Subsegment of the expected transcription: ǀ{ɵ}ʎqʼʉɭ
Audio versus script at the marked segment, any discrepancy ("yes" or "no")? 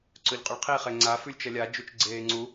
no